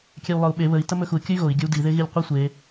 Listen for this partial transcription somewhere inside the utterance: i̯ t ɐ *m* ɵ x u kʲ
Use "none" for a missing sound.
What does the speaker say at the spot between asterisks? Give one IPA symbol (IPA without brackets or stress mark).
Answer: m